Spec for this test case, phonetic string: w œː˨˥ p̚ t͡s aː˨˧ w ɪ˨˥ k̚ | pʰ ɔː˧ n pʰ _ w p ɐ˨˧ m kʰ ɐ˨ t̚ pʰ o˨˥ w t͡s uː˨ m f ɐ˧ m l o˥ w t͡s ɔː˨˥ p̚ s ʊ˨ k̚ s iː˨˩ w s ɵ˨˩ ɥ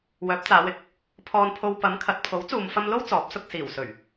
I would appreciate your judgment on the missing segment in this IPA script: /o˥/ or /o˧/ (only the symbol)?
o˧